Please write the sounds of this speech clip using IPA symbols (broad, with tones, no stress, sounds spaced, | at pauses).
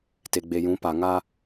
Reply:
t e˨ ɡ͡b e˨ j ũ˨˦ p a˨ ŋ a˦